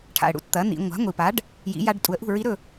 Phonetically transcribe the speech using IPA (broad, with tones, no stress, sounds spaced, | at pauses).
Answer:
ʈʰ a̰˩ ə̯ ɽ ṵ˧˥ t t̪ ɐ˩˥ n̪ ḭ˩˧ ŋʷ a̤˩˥ ŋʷ i˩ p a˩˥ ɖ | j ḭ˩˧ j a˧ ɖ tʼ u˩˧ ə̯ ʔ ṳ˥˩ ɹ i˧˥ ɾ ɵ˥˩